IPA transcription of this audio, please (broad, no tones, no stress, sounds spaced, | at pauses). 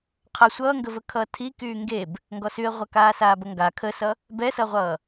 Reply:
qʰ ʌ sʷ ʌː ŋ ɡ ə v ə kʰ ʌː tʰ i k yː ŋ ɡ e b | ŋ ɡ ɔ s y ə̯ ʁʷ a k aː s aː b ʌ ŋ ɡ a kʰ ə s ʌ | b ɛ s ʌ ʁʷ ʌː